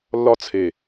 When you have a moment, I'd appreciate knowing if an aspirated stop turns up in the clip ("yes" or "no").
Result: yes